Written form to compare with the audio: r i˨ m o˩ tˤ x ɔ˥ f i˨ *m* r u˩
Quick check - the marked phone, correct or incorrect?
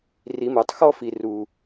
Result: incorrect